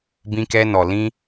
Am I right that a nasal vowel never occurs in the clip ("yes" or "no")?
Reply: no